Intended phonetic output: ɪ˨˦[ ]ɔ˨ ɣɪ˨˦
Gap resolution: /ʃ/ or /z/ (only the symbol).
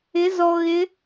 z